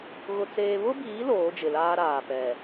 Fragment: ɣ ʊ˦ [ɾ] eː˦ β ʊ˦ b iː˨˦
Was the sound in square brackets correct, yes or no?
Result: no